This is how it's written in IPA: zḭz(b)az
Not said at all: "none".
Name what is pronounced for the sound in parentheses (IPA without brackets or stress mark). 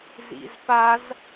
p